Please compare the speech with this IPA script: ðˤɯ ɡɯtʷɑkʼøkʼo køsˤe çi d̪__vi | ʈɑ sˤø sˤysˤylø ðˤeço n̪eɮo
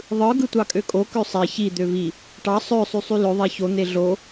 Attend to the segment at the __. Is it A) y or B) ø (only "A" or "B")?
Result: B